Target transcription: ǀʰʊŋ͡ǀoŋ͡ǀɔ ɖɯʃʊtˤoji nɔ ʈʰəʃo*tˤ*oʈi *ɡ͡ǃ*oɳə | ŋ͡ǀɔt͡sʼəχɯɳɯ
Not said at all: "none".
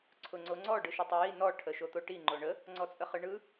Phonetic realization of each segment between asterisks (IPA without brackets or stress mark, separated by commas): t̪, ŋ͡ǃ